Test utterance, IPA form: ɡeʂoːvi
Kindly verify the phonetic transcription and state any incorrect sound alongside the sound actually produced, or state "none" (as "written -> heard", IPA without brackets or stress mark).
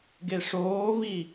none